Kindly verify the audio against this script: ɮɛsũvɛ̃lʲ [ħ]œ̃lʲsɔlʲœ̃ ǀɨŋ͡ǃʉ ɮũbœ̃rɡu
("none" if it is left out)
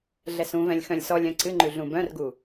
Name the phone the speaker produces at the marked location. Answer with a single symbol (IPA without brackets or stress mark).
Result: x